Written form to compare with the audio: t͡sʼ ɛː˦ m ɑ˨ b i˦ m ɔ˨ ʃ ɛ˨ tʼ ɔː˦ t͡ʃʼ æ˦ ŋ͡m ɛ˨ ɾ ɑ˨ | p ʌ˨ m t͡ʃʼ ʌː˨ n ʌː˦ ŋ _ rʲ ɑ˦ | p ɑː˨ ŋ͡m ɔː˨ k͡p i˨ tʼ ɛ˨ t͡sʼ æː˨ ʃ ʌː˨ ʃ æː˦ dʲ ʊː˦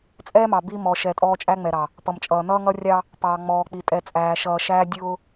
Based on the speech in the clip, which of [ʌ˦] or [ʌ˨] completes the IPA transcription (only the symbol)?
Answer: ʌ˦